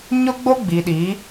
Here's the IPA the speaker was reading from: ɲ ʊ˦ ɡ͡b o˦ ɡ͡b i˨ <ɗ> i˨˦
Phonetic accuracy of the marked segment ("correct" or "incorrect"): correct